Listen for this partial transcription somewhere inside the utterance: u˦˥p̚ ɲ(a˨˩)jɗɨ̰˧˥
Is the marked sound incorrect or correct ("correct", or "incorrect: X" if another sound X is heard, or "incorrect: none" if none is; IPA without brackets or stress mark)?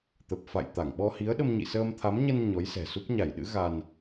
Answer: incorrect: a˧˩